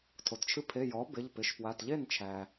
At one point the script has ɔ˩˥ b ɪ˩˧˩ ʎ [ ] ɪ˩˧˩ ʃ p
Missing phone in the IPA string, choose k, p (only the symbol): p